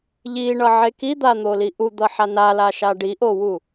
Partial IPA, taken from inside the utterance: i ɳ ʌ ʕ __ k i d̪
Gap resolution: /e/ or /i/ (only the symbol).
e